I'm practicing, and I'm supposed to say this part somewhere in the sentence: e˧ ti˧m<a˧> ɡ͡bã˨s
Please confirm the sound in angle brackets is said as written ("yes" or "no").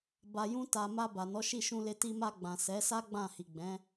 yes